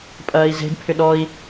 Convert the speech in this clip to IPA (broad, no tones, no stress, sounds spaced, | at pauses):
pʼ ɐː i̯ z e̤ d pʰ ʏ ɗ ɔ i̯